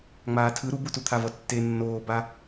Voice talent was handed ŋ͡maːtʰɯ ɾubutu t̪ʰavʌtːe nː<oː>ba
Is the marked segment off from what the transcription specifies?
no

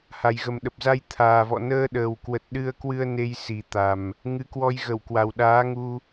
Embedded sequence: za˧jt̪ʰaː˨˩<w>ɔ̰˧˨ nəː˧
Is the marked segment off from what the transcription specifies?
yes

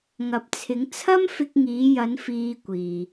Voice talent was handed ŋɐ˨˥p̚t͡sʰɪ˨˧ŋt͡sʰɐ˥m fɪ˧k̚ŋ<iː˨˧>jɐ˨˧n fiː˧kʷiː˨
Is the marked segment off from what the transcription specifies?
no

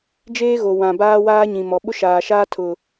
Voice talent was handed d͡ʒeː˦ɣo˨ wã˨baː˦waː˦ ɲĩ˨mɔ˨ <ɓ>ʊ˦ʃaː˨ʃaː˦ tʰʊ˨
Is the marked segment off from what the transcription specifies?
no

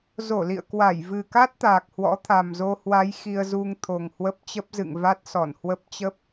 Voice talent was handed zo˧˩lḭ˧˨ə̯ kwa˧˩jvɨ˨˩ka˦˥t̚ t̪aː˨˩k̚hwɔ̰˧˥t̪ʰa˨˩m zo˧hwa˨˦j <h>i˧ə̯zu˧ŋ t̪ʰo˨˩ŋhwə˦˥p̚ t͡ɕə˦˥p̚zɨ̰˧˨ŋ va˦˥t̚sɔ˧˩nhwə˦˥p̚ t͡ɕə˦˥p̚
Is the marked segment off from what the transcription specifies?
yes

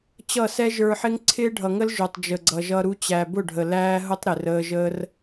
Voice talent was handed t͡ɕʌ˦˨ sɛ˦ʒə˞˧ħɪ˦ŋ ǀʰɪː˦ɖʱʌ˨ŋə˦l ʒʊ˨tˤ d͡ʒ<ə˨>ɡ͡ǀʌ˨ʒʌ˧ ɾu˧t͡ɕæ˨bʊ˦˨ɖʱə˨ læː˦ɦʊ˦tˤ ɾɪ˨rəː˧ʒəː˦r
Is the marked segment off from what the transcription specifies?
no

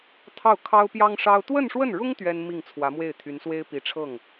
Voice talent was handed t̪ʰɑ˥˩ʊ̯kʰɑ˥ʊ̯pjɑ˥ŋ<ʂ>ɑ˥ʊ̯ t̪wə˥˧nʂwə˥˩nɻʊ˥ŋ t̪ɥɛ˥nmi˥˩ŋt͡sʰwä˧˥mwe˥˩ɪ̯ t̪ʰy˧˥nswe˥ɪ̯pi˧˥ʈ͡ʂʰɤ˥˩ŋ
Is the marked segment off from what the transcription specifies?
no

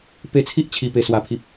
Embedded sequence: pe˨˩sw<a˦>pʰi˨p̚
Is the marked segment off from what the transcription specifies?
yes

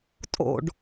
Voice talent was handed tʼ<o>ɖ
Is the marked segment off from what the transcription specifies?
yes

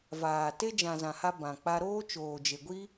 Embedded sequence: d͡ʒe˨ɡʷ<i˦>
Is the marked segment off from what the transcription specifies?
no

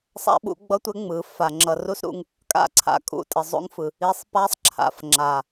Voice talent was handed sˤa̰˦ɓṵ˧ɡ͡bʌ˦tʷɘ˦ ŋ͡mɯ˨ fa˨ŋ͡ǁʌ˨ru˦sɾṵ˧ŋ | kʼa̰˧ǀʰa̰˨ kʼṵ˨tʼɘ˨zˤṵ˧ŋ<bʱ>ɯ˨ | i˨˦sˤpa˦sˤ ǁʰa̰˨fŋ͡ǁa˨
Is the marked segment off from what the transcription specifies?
yes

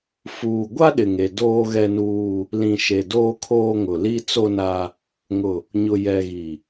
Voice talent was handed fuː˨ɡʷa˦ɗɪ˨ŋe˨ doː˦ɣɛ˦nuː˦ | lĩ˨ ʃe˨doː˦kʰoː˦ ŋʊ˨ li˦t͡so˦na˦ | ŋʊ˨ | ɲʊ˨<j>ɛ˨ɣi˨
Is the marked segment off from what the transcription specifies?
no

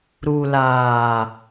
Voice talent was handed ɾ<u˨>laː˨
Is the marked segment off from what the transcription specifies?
no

